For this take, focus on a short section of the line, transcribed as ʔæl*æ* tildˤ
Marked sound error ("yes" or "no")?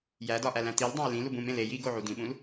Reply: yes